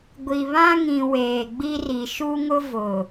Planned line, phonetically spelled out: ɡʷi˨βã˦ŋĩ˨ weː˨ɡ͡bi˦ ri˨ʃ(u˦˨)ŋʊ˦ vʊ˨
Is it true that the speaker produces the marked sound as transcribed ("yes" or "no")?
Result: no